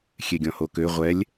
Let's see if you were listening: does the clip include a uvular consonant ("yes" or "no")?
yes